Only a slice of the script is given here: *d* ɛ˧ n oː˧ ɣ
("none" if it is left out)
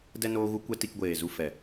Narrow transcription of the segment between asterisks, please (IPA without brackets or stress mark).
d